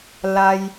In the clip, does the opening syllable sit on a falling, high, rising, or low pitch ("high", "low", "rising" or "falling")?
high